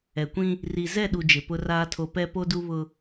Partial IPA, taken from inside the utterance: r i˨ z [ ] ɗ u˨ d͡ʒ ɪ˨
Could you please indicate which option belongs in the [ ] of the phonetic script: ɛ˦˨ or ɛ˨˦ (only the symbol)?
ɛ˦˨